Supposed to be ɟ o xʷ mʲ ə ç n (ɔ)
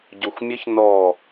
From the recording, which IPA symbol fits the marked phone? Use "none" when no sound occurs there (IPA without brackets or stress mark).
ɔ